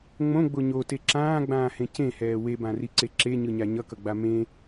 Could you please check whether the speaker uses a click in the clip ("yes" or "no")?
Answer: yes